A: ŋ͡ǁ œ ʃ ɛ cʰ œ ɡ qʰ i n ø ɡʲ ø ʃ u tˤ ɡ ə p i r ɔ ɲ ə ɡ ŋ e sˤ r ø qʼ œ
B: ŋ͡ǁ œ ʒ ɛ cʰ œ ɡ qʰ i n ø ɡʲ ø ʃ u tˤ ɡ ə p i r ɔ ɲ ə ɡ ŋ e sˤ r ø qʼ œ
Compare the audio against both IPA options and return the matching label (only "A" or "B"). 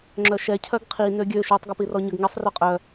A